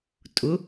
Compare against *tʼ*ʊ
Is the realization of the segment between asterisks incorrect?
no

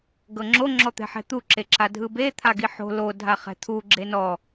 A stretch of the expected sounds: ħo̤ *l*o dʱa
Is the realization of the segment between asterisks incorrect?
no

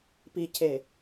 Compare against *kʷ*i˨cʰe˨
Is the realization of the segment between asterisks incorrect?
yes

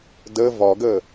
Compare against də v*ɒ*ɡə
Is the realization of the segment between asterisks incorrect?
no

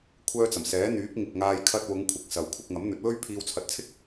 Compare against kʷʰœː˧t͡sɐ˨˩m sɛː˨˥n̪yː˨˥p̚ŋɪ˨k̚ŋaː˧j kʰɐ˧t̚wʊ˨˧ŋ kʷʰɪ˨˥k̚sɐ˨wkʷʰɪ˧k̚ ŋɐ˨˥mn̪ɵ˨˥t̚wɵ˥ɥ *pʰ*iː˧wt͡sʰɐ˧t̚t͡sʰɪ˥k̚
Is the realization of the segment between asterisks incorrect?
no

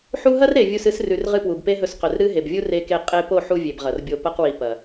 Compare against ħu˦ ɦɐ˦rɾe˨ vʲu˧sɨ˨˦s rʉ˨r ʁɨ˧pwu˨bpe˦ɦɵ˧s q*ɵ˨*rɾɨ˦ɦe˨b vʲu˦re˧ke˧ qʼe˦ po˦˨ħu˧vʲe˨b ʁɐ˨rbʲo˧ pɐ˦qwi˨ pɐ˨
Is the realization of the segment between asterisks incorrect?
no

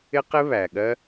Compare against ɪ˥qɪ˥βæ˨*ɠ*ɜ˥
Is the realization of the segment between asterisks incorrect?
no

